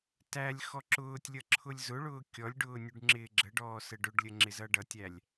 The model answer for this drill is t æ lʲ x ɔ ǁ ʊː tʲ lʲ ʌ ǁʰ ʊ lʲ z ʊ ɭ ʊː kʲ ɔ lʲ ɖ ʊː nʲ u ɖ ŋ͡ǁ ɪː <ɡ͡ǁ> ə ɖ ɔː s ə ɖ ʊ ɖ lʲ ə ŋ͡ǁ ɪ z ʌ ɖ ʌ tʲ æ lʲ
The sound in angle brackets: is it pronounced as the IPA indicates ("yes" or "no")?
yes